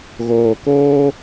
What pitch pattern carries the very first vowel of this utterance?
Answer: low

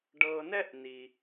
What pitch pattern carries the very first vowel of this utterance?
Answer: low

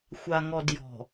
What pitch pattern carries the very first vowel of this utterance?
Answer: low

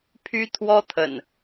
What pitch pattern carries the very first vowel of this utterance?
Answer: high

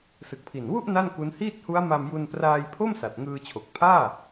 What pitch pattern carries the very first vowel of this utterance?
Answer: low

